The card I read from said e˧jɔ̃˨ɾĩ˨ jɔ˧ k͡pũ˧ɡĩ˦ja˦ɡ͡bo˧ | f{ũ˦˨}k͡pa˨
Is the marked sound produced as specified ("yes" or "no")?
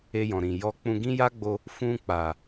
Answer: no